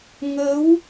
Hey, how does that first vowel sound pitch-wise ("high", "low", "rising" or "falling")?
rising